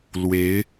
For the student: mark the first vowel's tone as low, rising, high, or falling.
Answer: rising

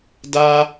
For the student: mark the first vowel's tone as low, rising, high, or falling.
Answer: high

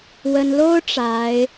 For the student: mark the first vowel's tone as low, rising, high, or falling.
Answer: high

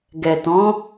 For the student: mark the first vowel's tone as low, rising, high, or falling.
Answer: low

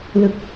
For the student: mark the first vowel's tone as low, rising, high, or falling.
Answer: low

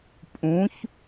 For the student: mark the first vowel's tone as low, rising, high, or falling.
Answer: rising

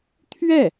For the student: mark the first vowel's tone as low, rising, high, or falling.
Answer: falling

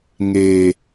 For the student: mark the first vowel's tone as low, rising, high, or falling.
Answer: low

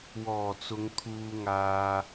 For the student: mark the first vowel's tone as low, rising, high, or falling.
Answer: low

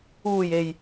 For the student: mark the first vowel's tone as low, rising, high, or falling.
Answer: low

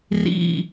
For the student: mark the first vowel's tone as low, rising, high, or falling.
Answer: falling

